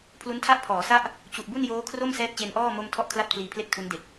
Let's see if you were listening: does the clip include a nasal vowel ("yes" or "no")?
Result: no